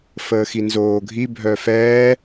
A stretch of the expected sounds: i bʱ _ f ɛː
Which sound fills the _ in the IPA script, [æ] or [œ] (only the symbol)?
œ